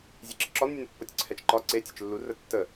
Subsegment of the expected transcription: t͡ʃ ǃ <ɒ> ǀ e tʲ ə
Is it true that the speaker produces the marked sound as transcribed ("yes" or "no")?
yes